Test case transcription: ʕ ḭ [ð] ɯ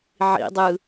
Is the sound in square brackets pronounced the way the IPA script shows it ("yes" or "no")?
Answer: no